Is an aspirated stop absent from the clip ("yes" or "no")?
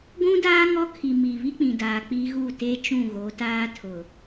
no